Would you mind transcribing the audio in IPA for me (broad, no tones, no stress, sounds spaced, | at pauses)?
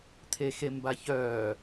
t̪ʰ e x e m b a ç œː